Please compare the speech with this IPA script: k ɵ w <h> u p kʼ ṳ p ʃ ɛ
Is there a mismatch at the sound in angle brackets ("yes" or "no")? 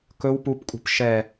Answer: yes